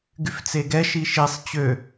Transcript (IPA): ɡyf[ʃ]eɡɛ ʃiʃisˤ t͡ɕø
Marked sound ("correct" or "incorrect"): incorrect